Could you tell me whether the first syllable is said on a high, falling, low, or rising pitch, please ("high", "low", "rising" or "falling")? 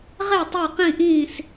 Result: falling